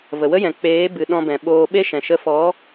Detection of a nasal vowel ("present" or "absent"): present